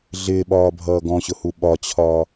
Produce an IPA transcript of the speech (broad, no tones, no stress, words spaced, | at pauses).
ɮɪːɓɒːbʱʌː ɡɔ̃ɕʊhu ɓɒt͡ɕʰɒː